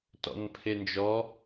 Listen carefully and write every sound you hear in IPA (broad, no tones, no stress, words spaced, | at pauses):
tɔ̰npʰend͡ʒɔ